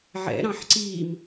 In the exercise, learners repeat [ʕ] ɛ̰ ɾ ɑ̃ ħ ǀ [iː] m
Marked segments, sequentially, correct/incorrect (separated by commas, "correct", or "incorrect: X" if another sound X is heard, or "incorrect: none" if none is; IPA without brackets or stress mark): correct, correct